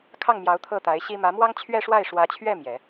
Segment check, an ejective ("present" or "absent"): absent